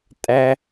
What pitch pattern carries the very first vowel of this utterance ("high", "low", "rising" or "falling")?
high